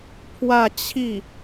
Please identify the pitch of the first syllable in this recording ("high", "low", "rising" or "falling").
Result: falling